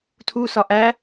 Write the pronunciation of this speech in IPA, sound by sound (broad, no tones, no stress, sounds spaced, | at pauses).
tʰ u s ɒ ʔ æ